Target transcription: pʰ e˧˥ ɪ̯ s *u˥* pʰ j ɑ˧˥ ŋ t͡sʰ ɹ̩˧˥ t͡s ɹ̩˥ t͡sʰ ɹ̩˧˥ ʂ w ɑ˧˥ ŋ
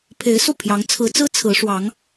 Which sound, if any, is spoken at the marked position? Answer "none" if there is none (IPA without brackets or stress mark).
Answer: u˥˩